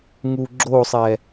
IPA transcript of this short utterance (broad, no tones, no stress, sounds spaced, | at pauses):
ŋ u ɡ͡ǁ o sˤ ɛ